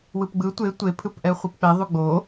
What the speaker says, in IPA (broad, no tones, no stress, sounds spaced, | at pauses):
w ɯ p ɡ͡b ɯ tʷ e tʷ e pʰ ɯ p ʔ ɛ χʷ i p k͡p ɛ ðˤ u ɡ͡b o